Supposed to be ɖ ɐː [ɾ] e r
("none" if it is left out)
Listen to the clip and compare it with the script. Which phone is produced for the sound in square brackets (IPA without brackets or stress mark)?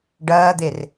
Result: d̪